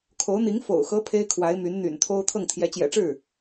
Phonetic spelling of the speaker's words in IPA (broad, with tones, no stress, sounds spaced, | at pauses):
kʰ o˧˥ ʊ̯ n̪ i˧˥ ŋ f o̰˨˩ ʊ̯ x ɤ˧˥ pʰ e˥ ɪ̯ kʰ w a˧˥ ɪ̯ m y˧˥ n n̪ y̰˨˩ n t̪ʰ o˥ ʊ̯ t̪ʰ ɤ˥˩ ŋ t̪ʰ j ɛ˧˥ t͡ɕ j ɛ̰˨˩ ʈ͡ʂ ɻ̩˥˩